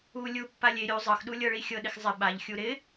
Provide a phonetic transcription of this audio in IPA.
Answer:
u lʲ u pː a lʲ e ɾʲ u zˤ ɤ x ɗ u lʲ ɤ ɭ i xʲ ɤ ɗ ɪ x zˤ ɪ ɓ a ʎ xʲ u ɾ ɪ

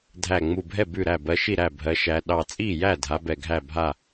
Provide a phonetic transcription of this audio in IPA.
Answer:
dʱ æ˧˩ ŋ͡m u˧˩ bʱ ɛ˥˩ b ʉ˥˩ ɾ æ˥˩ b ɜ˨˦ ʃ i˥˩ ɾ æ˥˩ bʱ ɜ˨˦ ʃ æ˨˦ ɗ ɑ˧˩ t͡sʼ i˥˩ j æ˥˩ dʱ a˨˦ b ɛ˧˩ ɡʱ æ˥˩ bʱ a˥˩

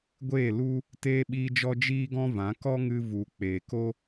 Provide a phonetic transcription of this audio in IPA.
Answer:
ɡʷ eː˦˨ l u˦ | t eː˧ ɓ iː˧ d͡ʒ ɔ˧ d͡ʒ iː˦ ɡ ɔ̃˦ v ã˨˦ k ɔ˦ ŋ ɨ˧ v u˨ k͡p eː˨ k o˦

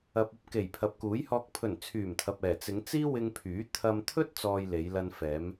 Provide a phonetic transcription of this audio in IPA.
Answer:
ɐ˨ p̚ ɐ˧ p̚ k e˨˩ j pʰ ɐ˨ p̚ k uː˨˥ j h ɔː˧ k̚ pʰ ɵ˨˩ n t͡sʰ yː˨˩ m t̪ʰ ɐ˨ p̚ ɛː˨˩ t͡s ɪ˨˧ ŋ t͡s iː˥ w ɪ˧ ŋ pʰ yː˨˥ t̪ʰ ɐ˧ m t̪ʰ ɵ˥ t̚ t͡s ɔː˧ j l e˨˧ j l ɐ˧ n f ɛː˨˧ m

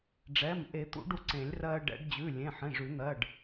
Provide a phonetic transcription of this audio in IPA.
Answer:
ɖ͡ʐ ɛ˩˧˩ m ʔ e˨˩˦ t̪ ṵ˨˩˦ ɖ u˧ ǀ ẽ˨˩˦ lʲ r ɜ˧ ɖ ɛ̰˨˩˦ ɖ d͡ʑ ʉ˩˧˩ lʲ ẽ˩˧˩ ħ ẽ˩˧˩ ʐ ʉ˨˩˦ n̪ ɜ˩˧˩ ɖ

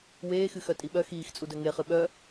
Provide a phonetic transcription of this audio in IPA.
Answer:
w eː x ɨ x œ tʼ i ɓ œ x iː x t͡sʼ u d œ ŋ e χ ɨ ɓ œ

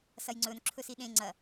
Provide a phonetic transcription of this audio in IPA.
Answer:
s ɐ j ŋ͡ǀ ɵ n ǁʰ ɵ s i ɗ ẽ ŋ͡ǀ ɐ

